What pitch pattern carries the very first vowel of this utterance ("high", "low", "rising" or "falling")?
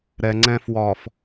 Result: low